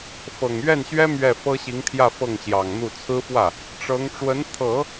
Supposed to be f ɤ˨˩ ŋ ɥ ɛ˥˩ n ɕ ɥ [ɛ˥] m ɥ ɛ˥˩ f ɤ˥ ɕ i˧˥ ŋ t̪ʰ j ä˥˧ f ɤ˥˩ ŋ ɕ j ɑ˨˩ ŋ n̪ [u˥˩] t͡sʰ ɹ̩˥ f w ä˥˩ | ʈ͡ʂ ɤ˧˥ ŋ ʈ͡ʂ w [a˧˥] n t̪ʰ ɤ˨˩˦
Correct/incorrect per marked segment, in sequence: correct, correct, incorrect: ə˧˥

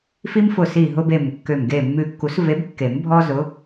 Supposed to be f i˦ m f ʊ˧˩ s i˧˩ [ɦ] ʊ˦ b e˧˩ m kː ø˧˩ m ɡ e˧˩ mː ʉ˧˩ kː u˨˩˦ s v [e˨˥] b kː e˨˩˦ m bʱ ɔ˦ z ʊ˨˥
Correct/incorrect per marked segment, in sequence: correct, correct

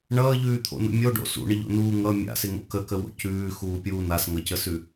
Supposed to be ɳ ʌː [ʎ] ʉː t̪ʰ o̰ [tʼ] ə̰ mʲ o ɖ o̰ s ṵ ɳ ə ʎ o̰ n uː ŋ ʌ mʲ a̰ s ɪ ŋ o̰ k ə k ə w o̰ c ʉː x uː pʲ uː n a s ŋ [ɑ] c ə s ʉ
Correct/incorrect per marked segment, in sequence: correct, incorrect: n, incorrect: ʌ

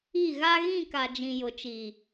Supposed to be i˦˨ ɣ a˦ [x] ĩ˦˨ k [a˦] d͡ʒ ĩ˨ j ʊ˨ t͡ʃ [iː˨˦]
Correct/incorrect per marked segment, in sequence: incorrect: ɣ, incorrect: a˨, incorrect: iː˨

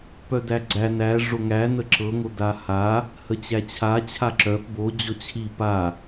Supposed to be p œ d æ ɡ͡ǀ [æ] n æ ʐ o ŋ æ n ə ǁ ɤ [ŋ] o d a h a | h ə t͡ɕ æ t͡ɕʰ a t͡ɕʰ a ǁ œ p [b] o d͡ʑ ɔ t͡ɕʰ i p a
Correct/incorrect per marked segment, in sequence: correct, correct, correct

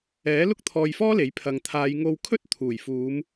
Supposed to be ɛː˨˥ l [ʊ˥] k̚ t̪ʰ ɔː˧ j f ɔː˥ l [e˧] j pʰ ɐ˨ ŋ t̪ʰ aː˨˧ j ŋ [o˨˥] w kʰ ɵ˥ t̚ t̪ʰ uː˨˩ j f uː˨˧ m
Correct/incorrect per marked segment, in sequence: correct, incorrect: e˨˥, incorrect: o˧

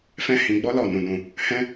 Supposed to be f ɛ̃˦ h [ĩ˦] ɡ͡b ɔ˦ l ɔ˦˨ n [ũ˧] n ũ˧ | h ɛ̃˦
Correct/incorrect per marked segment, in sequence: incorrect: ĩ˧, correct

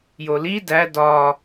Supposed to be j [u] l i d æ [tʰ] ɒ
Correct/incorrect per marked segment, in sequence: incorrect: o, incorrect: d

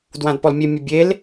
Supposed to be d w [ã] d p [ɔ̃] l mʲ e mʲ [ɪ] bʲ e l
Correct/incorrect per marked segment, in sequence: correct, incorrect: ɔ, incorrect: ə

